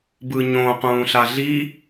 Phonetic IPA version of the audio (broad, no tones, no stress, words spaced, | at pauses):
bɯɲõ qũːɬaɮi